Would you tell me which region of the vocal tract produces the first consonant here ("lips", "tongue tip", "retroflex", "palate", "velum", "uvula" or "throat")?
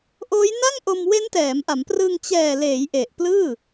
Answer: throat